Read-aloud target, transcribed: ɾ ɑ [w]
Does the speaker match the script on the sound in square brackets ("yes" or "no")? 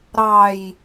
no